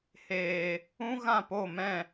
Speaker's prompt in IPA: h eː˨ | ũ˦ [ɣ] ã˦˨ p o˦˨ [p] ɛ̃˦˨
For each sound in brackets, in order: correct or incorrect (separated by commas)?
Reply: correct, incorrect